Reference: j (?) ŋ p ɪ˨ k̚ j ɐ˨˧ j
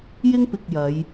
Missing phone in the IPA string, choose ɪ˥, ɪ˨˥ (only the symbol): ɪ˥